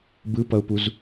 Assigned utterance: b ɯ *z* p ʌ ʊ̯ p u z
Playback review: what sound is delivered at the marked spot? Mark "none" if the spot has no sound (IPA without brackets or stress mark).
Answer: none